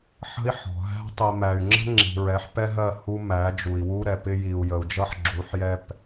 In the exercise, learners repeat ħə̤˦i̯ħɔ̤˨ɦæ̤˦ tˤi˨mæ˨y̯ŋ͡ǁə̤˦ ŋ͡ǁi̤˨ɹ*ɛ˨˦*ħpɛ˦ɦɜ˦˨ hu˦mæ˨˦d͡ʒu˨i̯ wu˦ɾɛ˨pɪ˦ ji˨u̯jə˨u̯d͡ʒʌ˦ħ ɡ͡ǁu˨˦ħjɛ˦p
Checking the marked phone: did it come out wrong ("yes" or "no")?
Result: no